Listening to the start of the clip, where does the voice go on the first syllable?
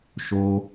high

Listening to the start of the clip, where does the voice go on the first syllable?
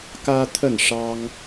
high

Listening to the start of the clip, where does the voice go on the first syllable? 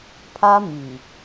high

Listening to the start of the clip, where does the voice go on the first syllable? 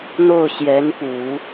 falling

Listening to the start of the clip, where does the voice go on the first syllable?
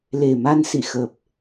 low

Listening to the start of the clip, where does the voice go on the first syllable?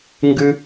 high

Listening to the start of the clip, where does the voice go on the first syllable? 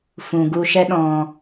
low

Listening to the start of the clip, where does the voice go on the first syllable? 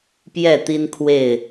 falling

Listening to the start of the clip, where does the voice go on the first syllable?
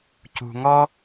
low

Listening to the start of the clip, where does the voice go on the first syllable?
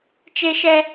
high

